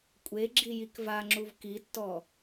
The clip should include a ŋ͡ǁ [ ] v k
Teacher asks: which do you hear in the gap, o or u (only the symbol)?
u